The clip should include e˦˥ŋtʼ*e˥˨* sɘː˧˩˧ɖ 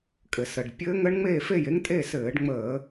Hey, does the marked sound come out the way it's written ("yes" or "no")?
yes